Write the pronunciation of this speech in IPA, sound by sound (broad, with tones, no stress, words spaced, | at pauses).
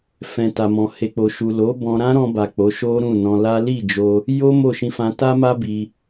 fɛ̃˨ta˨mɔ̃˨ he˨k͡po˨ ʃu˨lo˨˦ bɔ̃˧ɾã˦ɾɔ̃˧ba˨ k͡po˨˦ʃo˦ɾũ˦˨nɔ̃˧ la˦ li˦˨d͡ʒo˧ | jo˦ mo˦˨ʃĩ˧fã˧ ta˦ma˦ bi˧